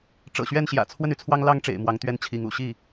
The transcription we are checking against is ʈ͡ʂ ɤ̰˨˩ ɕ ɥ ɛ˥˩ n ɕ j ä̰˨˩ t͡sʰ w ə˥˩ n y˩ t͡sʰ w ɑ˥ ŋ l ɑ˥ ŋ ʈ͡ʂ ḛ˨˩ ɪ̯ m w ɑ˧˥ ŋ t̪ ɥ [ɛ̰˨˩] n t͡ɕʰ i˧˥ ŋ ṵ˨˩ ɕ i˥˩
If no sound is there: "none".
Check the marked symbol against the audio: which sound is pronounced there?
ɛ˥˩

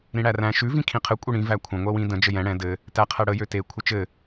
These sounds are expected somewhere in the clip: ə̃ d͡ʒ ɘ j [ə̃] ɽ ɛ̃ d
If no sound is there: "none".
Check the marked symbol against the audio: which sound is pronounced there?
ɛ̃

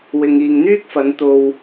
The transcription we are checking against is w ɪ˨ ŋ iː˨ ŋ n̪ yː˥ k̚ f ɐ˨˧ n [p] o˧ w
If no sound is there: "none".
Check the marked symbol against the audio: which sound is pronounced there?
t̪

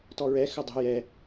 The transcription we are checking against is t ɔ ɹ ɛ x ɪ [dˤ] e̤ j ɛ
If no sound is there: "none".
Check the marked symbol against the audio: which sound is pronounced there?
dˤ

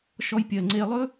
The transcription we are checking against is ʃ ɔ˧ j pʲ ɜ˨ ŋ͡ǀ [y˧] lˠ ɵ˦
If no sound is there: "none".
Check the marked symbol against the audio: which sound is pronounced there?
e˧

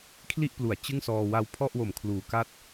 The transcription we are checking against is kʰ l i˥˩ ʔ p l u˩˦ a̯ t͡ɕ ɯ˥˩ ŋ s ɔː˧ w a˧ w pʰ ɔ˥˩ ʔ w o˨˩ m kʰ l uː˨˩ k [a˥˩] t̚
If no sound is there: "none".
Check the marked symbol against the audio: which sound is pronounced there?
a˥˩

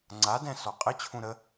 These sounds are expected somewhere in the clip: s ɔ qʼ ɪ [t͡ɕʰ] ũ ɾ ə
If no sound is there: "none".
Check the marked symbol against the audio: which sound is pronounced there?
t͡ɕʰ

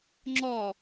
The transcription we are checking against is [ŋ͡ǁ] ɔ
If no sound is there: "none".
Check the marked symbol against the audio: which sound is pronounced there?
ŋ͡ǁ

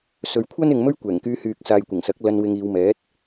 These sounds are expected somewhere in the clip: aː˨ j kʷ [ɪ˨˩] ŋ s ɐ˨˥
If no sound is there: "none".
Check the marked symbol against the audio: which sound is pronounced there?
ɪ˨˩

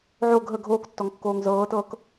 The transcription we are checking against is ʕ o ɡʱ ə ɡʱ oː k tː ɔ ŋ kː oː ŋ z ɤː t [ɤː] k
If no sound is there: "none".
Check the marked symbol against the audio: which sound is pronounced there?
ɤː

